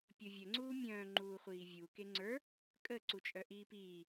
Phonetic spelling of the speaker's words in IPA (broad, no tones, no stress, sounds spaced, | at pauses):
pʲ o vʲ ə ŋ͡ǀ uː mʲ œ̃ː ŋ͡ǃ uː χʷ iː vʲ u k e ŋ͡ǀ ə˞ | kʼ ə ǀ u t͡ʃʼ œ ʔ iː p iː